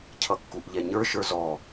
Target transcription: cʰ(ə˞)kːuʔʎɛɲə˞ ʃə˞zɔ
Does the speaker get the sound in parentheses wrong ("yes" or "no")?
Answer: yes